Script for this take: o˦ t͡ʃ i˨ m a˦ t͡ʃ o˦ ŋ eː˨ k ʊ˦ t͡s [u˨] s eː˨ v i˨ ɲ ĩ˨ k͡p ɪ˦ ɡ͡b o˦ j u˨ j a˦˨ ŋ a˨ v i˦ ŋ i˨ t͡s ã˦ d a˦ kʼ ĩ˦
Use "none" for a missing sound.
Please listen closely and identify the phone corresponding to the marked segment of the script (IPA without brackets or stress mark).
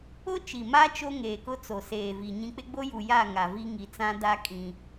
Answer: o˨